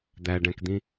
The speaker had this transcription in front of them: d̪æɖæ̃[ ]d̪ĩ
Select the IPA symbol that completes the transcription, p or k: k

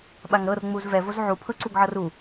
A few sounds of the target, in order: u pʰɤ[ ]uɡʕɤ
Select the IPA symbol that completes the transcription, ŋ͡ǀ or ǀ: ǀ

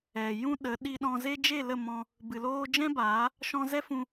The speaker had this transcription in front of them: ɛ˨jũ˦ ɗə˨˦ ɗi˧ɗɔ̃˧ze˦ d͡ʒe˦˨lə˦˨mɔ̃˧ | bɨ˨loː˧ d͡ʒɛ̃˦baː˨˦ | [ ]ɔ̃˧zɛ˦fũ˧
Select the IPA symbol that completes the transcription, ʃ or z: ʃ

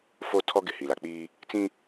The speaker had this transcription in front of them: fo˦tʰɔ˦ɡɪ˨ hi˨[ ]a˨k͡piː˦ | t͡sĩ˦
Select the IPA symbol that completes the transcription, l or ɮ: l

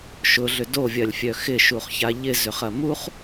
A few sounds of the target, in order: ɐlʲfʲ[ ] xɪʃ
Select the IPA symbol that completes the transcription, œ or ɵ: œ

